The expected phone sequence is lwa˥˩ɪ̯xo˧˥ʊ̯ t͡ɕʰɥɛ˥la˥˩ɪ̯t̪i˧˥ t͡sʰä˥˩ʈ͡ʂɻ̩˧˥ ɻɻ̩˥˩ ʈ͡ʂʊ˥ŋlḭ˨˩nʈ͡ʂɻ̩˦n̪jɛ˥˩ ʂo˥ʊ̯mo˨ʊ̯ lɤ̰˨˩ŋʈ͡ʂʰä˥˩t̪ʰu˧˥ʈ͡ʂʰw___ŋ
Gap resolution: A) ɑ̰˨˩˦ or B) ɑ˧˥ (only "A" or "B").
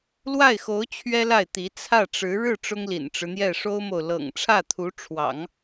A